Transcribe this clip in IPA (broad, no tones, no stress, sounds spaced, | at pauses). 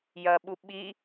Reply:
j ɐ ɓ u ɓ i